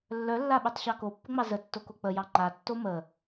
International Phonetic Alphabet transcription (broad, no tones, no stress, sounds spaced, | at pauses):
lː œ lː a ɓ œ tˤ ɕ ɑ k o pː ə ŋ͡m ɑ z ə tː o k o k͡p ə j ɑ ŋ͡ǃ a tː o m ə